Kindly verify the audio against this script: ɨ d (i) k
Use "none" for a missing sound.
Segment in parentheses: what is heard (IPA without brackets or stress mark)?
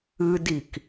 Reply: i